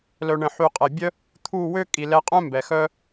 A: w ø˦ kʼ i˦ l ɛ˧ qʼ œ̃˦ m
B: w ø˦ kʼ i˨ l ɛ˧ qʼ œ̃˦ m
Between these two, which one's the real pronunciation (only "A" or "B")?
B